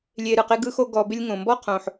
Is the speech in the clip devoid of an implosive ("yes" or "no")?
yes